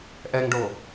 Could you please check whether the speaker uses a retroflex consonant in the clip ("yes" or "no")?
yes